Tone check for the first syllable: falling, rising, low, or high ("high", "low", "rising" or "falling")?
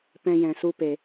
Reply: high